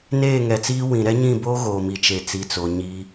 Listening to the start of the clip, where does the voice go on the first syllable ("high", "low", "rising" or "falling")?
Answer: falling